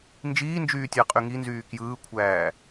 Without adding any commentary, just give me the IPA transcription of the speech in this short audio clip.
n d͡ʒ iː n d͡ʒ yː tʲ æ qʼ y ŋ i n z yː k j ɯː kʷʰ æː

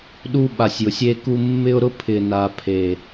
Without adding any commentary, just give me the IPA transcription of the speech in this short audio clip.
ɗ u˧ ɓ a˨ sʲ j ʊ˨ sʲ e˧ k u˧ mː ɪ˦ ʊ̯ ɾ ʊ˦ pʰ ɪ˨ n a˨ pʰ e˨

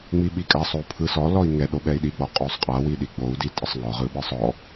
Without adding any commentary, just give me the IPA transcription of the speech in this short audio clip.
ŋ͡m i ɓ i kʼ a sˤ o u̯ pʰ ɯ s ɔ l ɔ i̯ ŋ ɛ ɗ o ɓ ɛ i̯ ɗ i ɡ͡b ɔ qʼ o sˤ qʼ a w i ɗ i ɡ͡b o u̯ d i tʼ ə sˤ ŋ ɔ ʁ ɯ ɓ ɯ sˤ ɔ

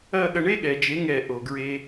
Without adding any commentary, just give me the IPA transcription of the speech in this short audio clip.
ɐ˦˨ ɠ ɐ˧ ɳ e˦ ɠ ɛ˨ d͡ʒ e˨˦ ŋ ɛ˦˨ ʔ o˨ ɡ ɹ e˧

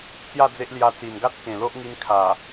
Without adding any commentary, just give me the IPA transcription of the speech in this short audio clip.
t͡s j a˥˧ d͡z e˦ ʔ l j a˧ t͡s i˨˩ n ɡ a˦ t̚ k ẽ˨˩ l o˦ ʔ ŋ i˧ n kʰ a˨˩

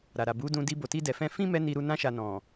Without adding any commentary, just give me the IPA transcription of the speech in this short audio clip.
ɾ a˨ ɾ a˨ b u˨˦ d ũ˧ d i˧ b o˨ t i˧ d ɛ˨ f ɛ̃˧ f ĩ˦ m ɛ˦ n i˧ ɾ u˧ n ã˧ ʃ a˨ n ɔ̃˨

